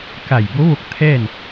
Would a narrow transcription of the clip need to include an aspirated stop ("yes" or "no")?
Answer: yes